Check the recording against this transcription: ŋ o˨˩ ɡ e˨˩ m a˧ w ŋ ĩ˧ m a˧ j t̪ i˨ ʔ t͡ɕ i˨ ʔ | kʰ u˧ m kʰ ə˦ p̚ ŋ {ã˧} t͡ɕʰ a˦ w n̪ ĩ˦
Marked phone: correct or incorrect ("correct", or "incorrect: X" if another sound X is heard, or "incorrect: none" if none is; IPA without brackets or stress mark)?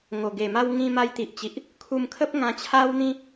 correct